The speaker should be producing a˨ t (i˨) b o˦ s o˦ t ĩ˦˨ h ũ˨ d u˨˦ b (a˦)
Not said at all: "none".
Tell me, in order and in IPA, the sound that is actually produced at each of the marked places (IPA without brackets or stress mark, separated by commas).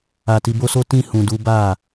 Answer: i˧, a˦˨